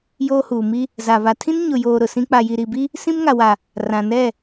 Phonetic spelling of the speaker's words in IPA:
joː˦huː˨mi˦ | za˨ βa˨tʰĩ˦n ɲʊ˨joː˨ ɾʊ˨sĩ˦ k͡pa˨ji˨ɾi˨bi˦ | sĩ˦mŋa˨wa˨ | rã˨nɛ˦˨

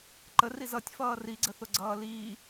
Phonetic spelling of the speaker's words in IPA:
ǃəri zʌtʲfʌː riɡ͡ǀəθʊɡ͡ǀʌː liː

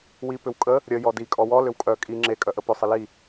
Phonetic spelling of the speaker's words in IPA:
wi pʏwkʼə | ɾʲə jɔdi kʼɔwɔ lʏwkʼœ kʼi ŋ͡ǁe kʼœʔəpʏ sˤəli

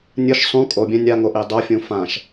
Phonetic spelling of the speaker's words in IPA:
nʲɯʃ sˤũ kʼobʲɛ̃ nʲaŋo ʔidˤofʲũ fãʃ

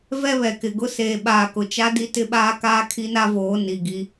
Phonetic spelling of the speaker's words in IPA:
vɛ˦βɛ˨kɪ˨ɡʊ˦ seː˨ɓaː˨kʊ˨t͡ʃa˦ di˦tɪ˦ɓaː˦kaː˦ kʰi˦na˦voː˨˦ ni˨ ɡi˦

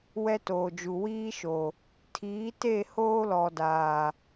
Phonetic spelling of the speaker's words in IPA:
wɛ˦toː˨d͡ʒu˨ wiː˦ʃo˨ | tʰiː˨˦te˦˨ hoː˦lɔ˨daː˨

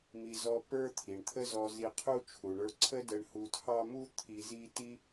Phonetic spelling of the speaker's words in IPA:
mi˧ zɔ˥ pə˞˥t̪ʰi˩ɳt̪ʰə˥zɔ˧ zi˧qʰu˥t͡ʃʰu˩ ɳə˞˧ǀʰə˥də˧ɳ hu˧tʰɑ˥ mu˥ t̪ʰi˧zi˥ ti˥

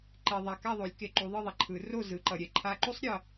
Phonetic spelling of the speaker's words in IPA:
ǃe˨ðˤa˨ ka˥˨ðˤo˨˩˦lʲ ke˨ǃu˨˦ðˤɯ˥˨ðˤɛ˨ ǃʰɯ˨˩˦ro˥˨ zɯ˨˦ǃʌ˨ ɾʲɛ˥ǃʰa˧˥˧ ǃu˥sˤ ɾʲʌ˨

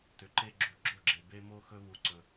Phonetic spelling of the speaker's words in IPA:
tʏ˨ǃe˦ ɡ͡ǁu˨ɡ͡ǁo˦˨ɡ͡ǁe˨ be˦mo˦ xɵ˦βu˨ǀɵ˨

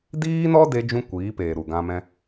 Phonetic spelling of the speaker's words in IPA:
diː˦nɔ˦de˧d͡ʒũ˧ kʷiː˨˦peː˨ ɾu˨ɡã˧ mɛ̃˧

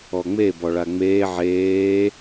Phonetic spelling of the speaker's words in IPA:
ɔŋ͡me bɔɭaŋ͡meː ʕeː

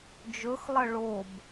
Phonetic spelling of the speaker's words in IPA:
d͡ʒɵxlˠɐ ɭob

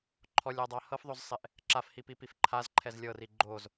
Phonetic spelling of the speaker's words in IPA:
ǃʰɔlʲadˤa hɤfðˤozsˤeʔ | ǁafhipipif ǃʰazǃʰɛz lʲɤri ɡ͡ǃoz

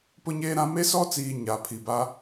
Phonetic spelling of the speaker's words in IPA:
pʊ˦ɲeː˦ɾã˦ me˦sɔ˦t͡siː˨ ɲa˨pʰi˨ba˦

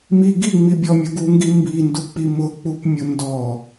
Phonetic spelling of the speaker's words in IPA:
mi ɡiŋ͡mibʲɔmʲʊ ɡuŋɡi mbinduk͡pi mʊk͡pupmʲʊ ndɔ

